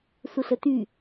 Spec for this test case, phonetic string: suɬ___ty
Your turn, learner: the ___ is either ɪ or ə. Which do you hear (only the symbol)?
ə